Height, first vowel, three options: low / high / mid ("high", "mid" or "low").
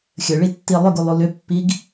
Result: mid